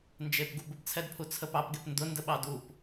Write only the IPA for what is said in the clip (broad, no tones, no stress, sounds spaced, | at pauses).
n d͡ʒ e p ɡ u b ə p t͡sʰ ɛ d pʰ u t͡sʰ ə p ɑ p ɡ e p n d ʊ n d ə ɓ ɑ d u p